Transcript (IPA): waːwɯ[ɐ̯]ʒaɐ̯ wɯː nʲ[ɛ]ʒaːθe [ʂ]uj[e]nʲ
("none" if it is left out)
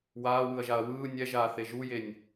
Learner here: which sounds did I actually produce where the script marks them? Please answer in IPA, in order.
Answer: ɐ̯, ɛ, ʒ, e

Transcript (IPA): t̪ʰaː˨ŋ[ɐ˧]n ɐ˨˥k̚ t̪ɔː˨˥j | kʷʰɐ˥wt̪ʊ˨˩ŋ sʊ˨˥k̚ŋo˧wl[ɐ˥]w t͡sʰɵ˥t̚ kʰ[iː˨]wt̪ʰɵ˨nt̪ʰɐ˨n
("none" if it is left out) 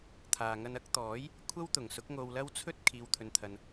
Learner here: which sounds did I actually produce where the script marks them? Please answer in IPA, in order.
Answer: ɐ˧, ɐ˥, iː˨

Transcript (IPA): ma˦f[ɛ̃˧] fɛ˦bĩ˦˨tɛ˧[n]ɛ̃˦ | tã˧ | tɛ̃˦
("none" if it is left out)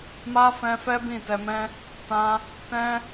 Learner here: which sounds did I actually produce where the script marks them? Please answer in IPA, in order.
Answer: ɛ̃˧, m

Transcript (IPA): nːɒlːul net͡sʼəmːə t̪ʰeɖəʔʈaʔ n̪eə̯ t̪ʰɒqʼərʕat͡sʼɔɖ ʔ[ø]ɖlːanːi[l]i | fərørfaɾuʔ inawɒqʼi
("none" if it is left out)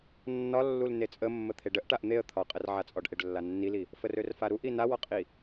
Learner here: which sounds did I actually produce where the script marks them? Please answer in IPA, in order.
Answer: e, l

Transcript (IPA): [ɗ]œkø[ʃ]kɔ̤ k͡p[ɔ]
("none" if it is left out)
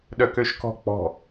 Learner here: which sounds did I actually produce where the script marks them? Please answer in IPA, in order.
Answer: ɗ, ʃ, ɔ̤

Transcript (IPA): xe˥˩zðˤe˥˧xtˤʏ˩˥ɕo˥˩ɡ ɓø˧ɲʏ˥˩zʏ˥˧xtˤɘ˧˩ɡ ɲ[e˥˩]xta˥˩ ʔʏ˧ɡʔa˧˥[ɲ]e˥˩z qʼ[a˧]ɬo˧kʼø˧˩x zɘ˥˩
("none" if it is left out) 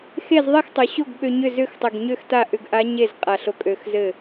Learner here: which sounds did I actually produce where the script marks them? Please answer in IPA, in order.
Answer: ø˥˩, ɲ, a˧˩

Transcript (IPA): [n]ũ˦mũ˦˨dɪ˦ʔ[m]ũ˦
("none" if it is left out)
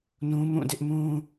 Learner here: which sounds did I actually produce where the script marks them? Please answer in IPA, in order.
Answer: n, m

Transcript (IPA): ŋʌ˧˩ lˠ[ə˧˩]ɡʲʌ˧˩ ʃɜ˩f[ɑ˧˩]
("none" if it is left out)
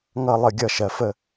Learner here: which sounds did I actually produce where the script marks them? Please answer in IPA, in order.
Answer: ə˧˩, ə˧˩

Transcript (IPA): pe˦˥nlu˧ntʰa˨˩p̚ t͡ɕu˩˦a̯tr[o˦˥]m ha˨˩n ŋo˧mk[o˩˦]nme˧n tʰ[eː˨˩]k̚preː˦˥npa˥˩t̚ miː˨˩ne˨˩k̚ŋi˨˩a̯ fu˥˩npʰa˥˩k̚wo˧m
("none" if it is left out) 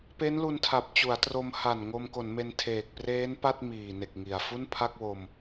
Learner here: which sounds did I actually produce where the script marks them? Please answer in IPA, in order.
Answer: o˧, o˩˦, eː˨˩

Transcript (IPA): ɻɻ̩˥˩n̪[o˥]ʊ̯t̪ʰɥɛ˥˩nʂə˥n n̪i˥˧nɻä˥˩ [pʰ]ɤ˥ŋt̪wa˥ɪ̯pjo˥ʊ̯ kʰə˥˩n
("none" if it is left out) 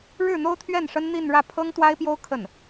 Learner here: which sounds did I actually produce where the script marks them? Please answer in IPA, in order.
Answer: o˥, pʰ

